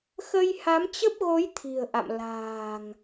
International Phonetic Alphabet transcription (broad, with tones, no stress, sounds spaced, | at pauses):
x ə˧ j h a˨˦ m t͡ɕ ə˦˥ p̚ ɣ o˨˦ j t̪ʰ i̤˨˩ ə̯ ʔ a̰˧˨ m l a̤ː˨˩ ŋ